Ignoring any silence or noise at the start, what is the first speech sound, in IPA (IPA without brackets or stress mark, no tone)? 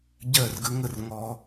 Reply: ɟ